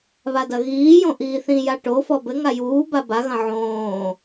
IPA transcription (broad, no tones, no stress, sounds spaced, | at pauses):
β a d ɐ ɣ iː j õ ʔ iː θ ĩ j a ʈ o f ɔ b ɘ ŋ a j uː b a b a ɣ ɐ̃ ʕ õː